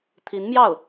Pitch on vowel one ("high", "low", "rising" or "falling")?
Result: rising